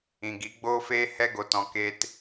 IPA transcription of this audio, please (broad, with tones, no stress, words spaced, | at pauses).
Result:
ĩ˨ɡi˨˦ɡ͡boː˦feː˦ hɛ˦ɡo˨tɔ̃˨ ke˦t